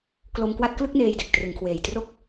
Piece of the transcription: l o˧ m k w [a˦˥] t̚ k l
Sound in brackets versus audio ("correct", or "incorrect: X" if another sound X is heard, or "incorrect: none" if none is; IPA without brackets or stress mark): incorrect: a˥˩